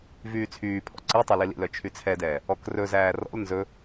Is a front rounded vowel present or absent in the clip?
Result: present